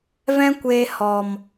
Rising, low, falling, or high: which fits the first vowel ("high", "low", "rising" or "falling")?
high